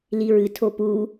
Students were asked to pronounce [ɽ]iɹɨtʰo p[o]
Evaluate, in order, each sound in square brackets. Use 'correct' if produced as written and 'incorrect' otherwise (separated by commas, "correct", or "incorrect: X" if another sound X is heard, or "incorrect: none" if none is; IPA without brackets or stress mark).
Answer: incorrect: l, incorrect: u